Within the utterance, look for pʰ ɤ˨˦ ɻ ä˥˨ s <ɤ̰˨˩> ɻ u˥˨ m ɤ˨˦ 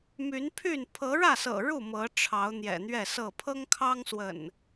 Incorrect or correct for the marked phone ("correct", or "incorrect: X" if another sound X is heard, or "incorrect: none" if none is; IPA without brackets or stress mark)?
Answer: correct